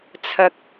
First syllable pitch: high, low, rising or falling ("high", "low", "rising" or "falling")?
low